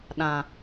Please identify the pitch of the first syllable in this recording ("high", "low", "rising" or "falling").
low